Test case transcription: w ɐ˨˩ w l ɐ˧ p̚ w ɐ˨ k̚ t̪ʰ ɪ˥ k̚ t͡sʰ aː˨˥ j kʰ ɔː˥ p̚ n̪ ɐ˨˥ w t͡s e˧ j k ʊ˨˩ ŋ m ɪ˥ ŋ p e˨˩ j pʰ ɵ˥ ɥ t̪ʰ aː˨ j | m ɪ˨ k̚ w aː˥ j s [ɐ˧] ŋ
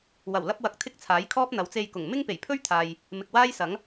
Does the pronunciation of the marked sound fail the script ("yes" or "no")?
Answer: yes